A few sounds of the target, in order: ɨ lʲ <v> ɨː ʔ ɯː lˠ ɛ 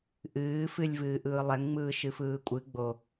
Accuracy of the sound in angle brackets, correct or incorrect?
correct